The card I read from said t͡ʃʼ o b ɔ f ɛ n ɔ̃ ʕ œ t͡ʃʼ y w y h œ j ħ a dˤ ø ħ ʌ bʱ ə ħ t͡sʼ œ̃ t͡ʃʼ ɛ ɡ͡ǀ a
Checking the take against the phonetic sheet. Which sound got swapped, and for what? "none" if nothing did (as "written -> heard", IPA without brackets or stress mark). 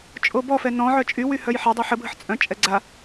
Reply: ʌ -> ə